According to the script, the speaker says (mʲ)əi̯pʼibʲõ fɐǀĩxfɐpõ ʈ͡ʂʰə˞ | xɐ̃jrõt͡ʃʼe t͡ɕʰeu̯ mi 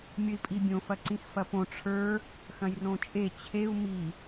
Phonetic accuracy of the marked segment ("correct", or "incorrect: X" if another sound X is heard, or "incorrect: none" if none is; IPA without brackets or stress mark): correct